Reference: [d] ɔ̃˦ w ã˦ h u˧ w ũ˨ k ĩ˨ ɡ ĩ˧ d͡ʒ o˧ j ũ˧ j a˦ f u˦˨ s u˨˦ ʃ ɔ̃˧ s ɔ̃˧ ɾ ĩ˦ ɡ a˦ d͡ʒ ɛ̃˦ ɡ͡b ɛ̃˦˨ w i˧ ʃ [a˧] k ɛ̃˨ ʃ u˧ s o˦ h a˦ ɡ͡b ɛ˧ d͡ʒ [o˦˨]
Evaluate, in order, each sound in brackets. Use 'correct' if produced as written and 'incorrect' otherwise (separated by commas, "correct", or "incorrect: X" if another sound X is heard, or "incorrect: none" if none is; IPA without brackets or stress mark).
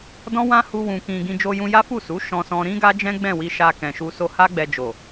correct, correct, incorrect: o˨